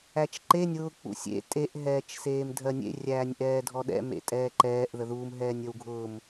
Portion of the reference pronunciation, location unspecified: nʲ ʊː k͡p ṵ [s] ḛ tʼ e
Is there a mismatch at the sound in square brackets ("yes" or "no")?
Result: yes